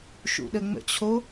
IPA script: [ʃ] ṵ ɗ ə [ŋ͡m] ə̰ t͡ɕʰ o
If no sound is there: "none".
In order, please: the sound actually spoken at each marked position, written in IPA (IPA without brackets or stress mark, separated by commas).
ʃ, ŋ͡m